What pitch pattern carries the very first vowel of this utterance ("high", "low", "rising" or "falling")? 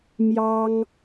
high